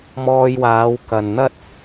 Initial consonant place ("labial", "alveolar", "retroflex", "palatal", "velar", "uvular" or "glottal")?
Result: labial